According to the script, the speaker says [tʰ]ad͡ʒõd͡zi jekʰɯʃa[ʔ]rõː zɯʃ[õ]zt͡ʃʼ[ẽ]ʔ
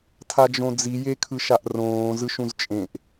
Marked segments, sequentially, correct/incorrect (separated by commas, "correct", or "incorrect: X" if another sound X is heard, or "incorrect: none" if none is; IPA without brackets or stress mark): correct, correct, incorrect: ũ, correct